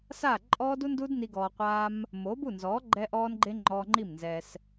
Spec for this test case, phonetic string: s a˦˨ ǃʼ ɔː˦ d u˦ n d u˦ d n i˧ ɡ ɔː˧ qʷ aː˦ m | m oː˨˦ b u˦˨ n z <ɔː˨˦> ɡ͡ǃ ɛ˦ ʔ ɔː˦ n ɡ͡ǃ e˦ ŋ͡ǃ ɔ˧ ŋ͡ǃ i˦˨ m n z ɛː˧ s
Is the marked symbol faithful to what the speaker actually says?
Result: yes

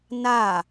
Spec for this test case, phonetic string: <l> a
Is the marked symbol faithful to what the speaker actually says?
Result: no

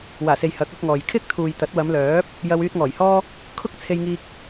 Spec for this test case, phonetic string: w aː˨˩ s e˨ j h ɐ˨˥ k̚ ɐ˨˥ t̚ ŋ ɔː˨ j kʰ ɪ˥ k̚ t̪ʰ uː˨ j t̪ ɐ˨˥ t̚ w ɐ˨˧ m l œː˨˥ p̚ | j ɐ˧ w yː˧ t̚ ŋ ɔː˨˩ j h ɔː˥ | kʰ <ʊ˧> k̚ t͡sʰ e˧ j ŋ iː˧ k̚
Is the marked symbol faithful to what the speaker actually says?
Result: no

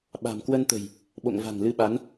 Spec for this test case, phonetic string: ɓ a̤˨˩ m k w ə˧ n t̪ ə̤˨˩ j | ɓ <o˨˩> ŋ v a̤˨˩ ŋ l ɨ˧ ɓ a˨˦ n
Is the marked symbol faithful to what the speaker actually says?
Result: no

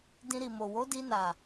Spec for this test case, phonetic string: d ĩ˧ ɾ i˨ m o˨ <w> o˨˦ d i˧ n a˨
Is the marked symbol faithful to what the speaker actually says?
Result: yes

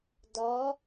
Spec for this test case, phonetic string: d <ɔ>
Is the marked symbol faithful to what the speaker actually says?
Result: yes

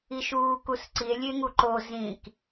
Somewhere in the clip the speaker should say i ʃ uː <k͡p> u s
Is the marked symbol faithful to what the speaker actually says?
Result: no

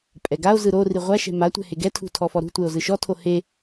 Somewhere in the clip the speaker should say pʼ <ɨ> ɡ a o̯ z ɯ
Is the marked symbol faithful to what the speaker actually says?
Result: no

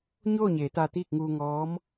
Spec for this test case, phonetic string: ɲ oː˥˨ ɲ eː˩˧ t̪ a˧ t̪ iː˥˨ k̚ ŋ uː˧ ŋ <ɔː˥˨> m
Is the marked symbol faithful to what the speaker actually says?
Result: no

